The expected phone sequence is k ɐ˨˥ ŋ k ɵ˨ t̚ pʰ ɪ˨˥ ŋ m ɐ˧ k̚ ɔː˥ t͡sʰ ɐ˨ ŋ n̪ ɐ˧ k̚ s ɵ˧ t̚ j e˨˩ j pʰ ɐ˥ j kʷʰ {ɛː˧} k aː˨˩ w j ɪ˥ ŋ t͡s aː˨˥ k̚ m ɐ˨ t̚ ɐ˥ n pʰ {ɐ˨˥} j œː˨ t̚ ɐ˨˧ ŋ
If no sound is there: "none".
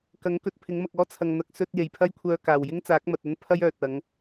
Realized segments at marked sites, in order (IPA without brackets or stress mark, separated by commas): œː˧, ɐ˥